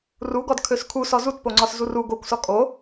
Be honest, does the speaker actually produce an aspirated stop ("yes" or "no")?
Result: yes